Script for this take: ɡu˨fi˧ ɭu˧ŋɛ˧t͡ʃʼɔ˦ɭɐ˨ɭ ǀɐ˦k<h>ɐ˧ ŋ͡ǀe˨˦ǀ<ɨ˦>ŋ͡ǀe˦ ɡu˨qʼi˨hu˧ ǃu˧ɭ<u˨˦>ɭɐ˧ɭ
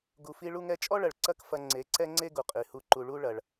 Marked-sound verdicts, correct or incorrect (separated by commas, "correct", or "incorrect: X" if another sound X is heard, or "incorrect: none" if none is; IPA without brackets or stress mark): incorrect: f, incorrect: ɛ˦, incorrect: u˦